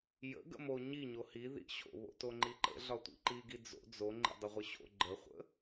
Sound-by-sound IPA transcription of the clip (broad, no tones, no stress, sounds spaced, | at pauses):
j ə̰ ɡ ə̰ m o ɲ i ɲ o h i ð ḭ ɕ o̰ β o̰ t o ŋ͡ǃ i ǃ ə̰ ɮ ɒ tʷ ḭ ǃ i ɡ i d͡z o̰ d͡z o ŋ͡ǃ ḭ dˤ ə ʁʷ ə ɕ o̰ ɡ͡ǃ ə χʷ ə̰